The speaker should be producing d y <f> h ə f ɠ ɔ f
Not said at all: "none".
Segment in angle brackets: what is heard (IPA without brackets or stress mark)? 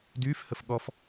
f